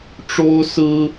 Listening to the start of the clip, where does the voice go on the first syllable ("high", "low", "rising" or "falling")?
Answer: high